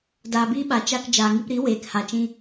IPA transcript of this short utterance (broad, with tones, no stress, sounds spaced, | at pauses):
d aː˧ b iː˦ ɓ a˨˦ t͡ʃ a˧ k d͡ʒ aː˨ ŋ i˧ p ɾ i˨˦ w eː˨ k h a˨ t͡ʃ ĩ˧